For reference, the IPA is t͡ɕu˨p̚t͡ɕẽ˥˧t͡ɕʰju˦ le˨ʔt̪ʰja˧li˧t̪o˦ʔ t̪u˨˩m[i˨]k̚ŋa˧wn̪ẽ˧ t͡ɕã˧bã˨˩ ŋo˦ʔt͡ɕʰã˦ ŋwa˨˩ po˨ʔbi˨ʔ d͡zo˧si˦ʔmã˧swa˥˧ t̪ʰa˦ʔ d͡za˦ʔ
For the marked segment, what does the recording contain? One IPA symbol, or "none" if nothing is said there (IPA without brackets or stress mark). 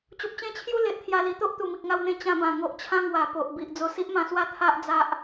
i˨